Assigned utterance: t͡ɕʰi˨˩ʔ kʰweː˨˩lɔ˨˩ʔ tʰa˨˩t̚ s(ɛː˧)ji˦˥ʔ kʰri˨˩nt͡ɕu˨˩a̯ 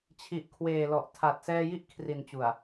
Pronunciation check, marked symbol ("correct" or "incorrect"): correct